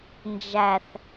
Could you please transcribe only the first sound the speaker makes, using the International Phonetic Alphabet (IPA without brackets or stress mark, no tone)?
n